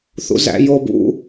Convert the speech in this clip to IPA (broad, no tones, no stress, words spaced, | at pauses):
θṵzæ̰jobṵ